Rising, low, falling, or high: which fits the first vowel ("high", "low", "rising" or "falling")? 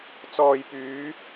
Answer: low